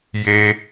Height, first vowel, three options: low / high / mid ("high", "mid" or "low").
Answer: mid